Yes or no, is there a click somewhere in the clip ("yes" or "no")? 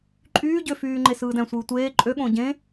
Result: yes